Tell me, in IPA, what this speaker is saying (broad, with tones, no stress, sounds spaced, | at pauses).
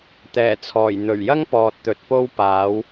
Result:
t̪ ɛː˨˩ t͡sʰ ɔː˨˩ j n̪ ɵ˨˩ ɥ j ɐ˥ ŋ p ɔː˨ t̚ t̪ ɵ˨˥ t̚ p o˥ w p aː˨˥ w